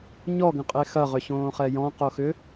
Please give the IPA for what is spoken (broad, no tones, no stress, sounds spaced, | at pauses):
ɲ ɔ ɡ ə̃ qʼ e x ɐ ʁ ʏ ɕ õː χ ɛ j ɔ̃ q o x ʏ